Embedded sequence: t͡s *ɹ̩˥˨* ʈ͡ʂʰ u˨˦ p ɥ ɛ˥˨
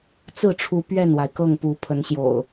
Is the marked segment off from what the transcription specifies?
no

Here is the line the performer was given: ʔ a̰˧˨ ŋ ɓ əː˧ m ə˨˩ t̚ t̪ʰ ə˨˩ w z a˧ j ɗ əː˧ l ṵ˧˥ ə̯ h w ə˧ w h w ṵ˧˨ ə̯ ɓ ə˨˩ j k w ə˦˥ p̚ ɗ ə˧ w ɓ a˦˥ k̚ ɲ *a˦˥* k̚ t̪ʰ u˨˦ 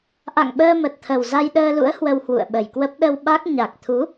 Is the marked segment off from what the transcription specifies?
yes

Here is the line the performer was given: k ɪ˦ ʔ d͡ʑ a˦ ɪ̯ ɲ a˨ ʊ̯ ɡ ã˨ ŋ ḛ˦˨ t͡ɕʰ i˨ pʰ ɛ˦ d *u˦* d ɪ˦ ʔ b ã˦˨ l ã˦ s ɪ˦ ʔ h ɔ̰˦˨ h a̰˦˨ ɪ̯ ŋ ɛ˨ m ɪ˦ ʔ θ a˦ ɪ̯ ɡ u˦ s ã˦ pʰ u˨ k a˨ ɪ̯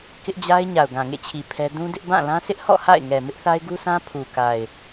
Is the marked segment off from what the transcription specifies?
yes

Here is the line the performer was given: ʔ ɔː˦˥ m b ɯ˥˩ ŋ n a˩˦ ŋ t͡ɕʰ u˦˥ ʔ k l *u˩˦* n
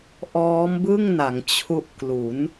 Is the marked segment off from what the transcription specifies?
no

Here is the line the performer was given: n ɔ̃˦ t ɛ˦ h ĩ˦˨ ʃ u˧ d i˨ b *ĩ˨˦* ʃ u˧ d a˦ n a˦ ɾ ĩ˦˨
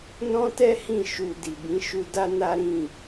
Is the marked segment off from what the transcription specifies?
no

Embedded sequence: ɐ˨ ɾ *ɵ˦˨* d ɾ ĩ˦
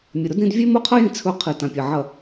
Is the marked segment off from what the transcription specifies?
yes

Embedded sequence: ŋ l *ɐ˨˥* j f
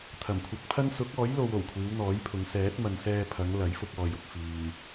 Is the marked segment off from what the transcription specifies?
no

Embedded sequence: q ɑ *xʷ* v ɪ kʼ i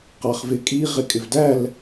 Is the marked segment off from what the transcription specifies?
yes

